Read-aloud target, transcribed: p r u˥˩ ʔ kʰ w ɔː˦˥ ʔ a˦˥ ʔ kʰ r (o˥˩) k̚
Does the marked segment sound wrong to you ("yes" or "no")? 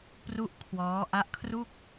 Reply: yes